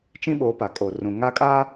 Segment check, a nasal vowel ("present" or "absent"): present